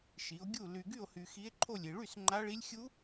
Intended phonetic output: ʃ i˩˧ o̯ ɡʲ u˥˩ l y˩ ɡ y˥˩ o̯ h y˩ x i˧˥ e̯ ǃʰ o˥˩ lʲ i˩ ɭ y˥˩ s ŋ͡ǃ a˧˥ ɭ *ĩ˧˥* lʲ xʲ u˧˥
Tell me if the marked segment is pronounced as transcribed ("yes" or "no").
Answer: no